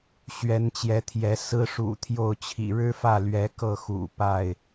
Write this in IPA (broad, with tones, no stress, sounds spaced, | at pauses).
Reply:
ɕ ɥ ɛ˨˦ n t͡ɕ j ɛ˨˦ t̪ʰ j ɛ˨˦ s ɹ̩˦ ʂ ṵ˨˩ t̪ʰ j o˥˨ ʊ̯ t͡ɕʰ ḭ˨˩ ɻ ɻ̩˦ f ä˥˨ l ɥ ɛ˨˦ k ɤ˥˨ x ṵ˨˩ p a˥˨ ɪ̯